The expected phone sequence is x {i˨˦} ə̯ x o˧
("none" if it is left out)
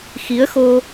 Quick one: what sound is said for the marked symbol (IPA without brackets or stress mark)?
i˨˦